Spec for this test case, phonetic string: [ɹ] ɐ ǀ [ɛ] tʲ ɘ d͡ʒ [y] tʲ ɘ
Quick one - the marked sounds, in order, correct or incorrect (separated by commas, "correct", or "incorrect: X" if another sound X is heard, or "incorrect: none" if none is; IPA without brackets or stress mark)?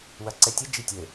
incorrect: w, correct, incorrect: i